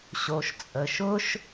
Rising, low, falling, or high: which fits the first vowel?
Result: low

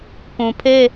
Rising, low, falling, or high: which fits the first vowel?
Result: low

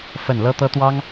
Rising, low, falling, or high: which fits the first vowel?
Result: falling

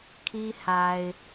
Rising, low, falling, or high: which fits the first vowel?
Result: high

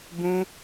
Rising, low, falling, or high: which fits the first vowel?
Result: high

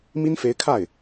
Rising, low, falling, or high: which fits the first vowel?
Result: high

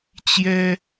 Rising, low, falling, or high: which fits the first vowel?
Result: high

